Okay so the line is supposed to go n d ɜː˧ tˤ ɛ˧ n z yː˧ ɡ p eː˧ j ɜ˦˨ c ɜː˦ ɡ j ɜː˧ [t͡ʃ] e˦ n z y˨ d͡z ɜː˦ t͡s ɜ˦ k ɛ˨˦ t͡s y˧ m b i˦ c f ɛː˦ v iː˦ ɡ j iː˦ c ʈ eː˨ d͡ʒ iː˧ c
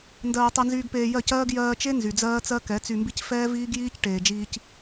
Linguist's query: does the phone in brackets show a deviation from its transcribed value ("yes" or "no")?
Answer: no